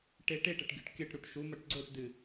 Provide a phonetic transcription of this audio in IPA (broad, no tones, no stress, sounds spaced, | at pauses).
ʈ e ʈ e ʈ ɐ ʈ ɡʲ o ʈ kʲ ɐ ʈ ɾ u ʈ ʃ u m ɐ ʈ ɡ͡ǀ o ʈ d ɨ